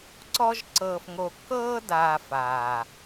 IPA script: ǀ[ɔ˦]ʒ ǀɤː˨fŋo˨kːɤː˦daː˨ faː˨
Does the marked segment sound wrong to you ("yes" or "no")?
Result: no